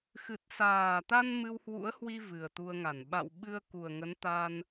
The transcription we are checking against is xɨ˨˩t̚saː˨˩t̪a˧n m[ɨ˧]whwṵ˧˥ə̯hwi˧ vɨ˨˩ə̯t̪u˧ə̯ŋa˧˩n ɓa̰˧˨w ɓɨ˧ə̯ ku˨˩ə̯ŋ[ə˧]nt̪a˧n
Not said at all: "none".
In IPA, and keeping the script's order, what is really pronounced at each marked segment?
ɨ˧, ə˨˦

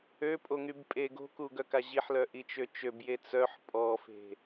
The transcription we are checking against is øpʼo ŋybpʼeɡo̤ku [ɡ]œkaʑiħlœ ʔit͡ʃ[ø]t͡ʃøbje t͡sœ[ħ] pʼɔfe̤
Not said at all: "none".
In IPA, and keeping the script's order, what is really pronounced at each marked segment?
ɡ, ø, ħ

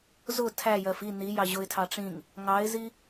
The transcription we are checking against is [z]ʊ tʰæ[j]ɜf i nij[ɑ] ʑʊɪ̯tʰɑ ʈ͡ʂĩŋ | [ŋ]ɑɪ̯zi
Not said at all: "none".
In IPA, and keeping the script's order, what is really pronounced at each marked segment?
z, j, ɑ, ŋ

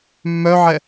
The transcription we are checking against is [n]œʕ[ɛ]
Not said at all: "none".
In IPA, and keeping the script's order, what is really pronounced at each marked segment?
mː, ɛ

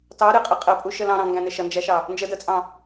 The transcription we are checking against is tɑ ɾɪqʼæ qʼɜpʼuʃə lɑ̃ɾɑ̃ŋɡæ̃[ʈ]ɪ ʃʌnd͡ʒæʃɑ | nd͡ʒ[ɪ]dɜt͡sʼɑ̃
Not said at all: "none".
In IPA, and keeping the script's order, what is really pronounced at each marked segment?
n, ə

